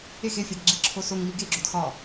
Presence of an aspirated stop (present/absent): present